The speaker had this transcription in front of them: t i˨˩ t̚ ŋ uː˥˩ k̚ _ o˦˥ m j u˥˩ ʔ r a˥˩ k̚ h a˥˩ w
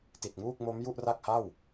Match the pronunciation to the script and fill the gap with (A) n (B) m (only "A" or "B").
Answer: B